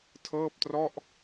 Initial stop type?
aspirated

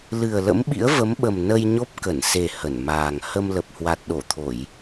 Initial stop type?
implosive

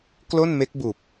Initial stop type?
plain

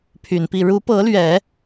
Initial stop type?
aspirated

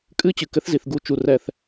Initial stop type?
ejective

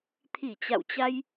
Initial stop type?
aspirated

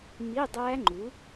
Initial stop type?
plain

